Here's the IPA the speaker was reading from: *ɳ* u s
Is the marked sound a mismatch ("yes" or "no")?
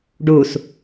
yes